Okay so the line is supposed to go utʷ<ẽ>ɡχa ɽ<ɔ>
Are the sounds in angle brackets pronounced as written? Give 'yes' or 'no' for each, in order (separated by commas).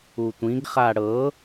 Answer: no, no